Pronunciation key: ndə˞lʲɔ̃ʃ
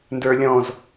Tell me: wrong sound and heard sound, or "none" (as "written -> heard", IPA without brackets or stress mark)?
ʃ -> z